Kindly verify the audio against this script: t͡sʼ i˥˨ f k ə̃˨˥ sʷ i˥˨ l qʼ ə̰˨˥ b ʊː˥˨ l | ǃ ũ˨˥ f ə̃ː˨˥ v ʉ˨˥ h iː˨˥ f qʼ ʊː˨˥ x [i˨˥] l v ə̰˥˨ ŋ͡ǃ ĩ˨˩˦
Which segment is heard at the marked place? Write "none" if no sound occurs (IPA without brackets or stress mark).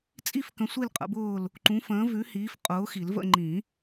i˨˩˦